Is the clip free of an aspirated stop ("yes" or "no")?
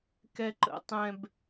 yes